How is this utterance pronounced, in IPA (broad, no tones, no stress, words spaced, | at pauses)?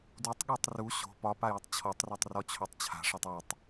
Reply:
dutˤɠutˤ ru ɕo̤ pɒpajutˤ t͡ɕʰɔtˤrotˤrɔt͡ɕʰotˤ t͡ɕʰa̤ʂɒtˤ utˤ